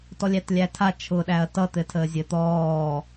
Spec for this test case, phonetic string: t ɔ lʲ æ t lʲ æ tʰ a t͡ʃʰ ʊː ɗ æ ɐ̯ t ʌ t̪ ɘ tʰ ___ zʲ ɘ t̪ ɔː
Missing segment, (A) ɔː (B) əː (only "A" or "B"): B